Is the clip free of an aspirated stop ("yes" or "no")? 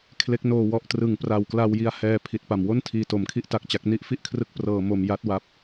no